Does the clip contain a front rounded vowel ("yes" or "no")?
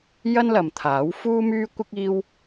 yes